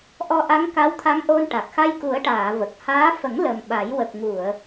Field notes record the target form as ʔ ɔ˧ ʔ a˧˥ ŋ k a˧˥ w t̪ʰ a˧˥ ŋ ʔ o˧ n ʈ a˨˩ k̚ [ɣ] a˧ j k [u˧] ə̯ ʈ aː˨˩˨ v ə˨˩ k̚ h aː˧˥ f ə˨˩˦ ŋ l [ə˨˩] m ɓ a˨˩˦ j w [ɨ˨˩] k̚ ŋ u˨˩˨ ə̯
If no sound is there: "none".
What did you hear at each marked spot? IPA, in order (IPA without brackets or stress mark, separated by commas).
x, u˨˩˦, ə˨˩, ə˨˩